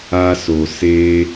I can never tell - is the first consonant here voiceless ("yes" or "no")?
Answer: yes